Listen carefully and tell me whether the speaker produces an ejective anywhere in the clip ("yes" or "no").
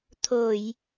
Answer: no